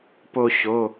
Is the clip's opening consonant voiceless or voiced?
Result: voiceless